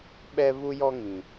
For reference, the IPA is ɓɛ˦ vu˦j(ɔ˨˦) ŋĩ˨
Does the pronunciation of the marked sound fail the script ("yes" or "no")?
yes